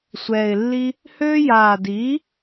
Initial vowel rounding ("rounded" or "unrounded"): unrounded